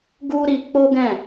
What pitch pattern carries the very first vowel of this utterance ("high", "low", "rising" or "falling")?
high